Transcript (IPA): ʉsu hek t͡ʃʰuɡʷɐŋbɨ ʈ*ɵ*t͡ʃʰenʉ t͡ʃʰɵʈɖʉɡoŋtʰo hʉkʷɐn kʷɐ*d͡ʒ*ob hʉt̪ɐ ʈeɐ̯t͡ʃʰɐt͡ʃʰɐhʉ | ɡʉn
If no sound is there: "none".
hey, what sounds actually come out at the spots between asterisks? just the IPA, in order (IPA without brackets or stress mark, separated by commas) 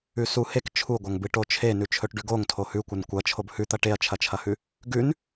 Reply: o, t͡ʃʰ